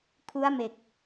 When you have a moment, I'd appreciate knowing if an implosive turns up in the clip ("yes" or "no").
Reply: no